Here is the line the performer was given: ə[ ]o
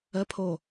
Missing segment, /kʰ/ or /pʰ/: pʰ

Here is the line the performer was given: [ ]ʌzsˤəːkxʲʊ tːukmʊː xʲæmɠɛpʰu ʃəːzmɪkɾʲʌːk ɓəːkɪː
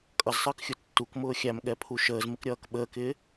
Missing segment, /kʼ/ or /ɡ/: kʼ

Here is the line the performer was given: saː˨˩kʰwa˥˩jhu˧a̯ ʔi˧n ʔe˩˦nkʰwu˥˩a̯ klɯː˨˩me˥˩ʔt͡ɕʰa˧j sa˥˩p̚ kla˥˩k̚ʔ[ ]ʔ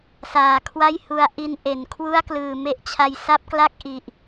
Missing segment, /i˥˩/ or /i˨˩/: i˨˩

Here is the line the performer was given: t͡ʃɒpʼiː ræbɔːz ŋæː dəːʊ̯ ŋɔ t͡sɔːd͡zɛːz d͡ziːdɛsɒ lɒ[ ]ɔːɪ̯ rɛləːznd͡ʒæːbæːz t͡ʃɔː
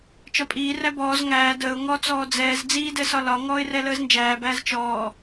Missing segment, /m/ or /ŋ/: ŋ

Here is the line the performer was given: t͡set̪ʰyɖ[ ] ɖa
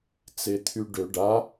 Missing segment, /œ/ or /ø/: ø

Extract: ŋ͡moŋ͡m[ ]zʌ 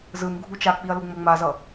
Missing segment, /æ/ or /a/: a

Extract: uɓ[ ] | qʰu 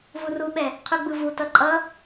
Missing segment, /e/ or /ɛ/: ɛ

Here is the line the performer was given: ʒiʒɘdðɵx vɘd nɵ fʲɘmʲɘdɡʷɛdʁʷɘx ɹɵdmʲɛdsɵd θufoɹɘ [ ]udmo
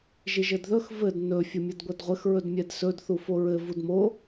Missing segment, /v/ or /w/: v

